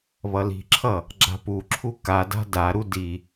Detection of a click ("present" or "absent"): present